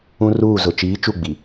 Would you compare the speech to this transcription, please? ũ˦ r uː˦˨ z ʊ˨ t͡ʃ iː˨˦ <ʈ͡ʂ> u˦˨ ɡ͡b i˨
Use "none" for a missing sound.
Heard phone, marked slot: t͡ʃ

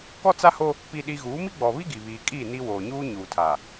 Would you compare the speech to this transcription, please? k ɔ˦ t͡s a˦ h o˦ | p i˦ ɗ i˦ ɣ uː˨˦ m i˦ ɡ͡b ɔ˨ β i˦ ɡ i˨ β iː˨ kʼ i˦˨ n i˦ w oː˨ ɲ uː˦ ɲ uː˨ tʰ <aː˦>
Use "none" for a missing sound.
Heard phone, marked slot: aː˨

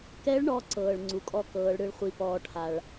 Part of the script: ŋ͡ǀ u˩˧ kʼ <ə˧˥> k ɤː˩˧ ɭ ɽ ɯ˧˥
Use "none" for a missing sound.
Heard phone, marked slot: ɔ˧˥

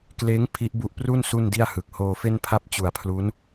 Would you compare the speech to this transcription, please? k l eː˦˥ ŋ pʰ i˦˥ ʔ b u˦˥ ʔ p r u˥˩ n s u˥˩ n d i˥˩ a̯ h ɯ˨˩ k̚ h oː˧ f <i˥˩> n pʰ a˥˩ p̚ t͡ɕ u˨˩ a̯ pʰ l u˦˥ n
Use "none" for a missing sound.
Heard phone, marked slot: e˥˩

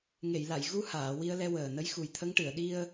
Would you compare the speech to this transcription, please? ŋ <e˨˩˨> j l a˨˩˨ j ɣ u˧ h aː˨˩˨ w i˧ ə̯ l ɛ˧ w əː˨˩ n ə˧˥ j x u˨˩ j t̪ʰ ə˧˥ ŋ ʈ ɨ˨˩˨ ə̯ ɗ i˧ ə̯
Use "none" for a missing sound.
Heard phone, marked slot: e˨˩˨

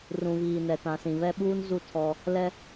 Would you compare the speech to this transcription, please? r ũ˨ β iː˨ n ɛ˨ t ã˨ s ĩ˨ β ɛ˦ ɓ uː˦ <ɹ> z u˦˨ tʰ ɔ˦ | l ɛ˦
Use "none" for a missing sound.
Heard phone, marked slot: n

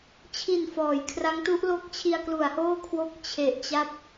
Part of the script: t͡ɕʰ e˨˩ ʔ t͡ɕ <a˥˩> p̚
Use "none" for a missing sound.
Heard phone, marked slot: a˥˩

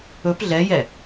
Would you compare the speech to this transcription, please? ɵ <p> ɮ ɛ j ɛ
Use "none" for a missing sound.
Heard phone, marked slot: p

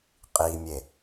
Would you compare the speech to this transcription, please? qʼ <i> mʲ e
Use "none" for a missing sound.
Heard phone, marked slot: i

